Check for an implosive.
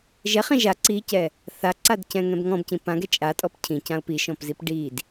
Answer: absent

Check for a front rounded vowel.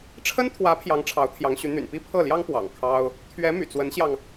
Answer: present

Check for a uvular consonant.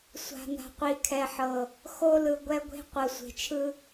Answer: present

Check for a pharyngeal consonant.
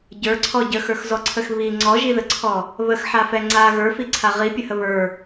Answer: present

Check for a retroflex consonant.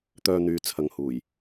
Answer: absent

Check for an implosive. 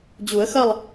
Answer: absent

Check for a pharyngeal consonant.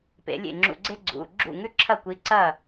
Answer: absent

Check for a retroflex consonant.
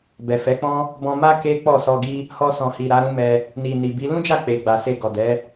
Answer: absent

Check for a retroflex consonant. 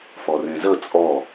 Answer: absent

